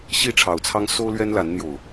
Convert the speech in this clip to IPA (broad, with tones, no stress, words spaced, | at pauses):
ɕi˥˨ʈ͡ʂʰɑ˨˩ʊ̯t͡sʰɑ˦ŋ so˦ʊ̯lɥɛ˦n la˨˦nn̪jo˨˩ʊ̯